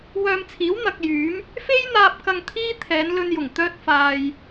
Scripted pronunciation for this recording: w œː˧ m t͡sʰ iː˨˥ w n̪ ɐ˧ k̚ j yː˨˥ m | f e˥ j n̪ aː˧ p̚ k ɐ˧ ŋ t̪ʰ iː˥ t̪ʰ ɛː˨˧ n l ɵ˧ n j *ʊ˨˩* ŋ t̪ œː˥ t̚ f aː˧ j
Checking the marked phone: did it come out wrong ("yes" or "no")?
no